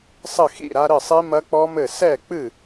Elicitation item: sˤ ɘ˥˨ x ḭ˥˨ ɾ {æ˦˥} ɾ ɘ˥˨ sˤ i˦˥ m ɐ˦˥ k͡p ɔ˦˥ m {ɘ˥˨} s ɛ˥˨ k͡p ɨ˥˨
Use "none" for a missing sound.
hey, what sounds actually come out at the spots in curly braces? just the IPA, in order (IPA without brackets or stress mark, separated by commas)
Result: a˦˥, ɘ˥˨